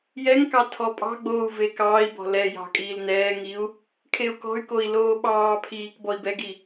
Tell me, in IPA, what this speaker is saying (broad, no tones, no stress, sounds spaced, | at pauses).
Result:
j ɛ ŋ k ɑ tʰ ɔ pʼ ɑ̤ ɡ͡b oː u̯ v e k ɑː i̯ b ɔ̤ l ɛ j ɑ̤ kʼ iː l n ɛː ŋ i u̯ | kʰ e u̯ k ɔ̤ y̯ k o i̯ l oː ɓ ɑː pʰ iː k b ɔ i̯ b ɛ ɡ i